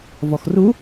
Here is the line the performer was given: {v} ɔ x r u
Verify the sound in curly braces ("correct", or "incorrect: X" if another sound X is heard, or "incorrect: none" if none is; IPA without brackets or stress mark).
correct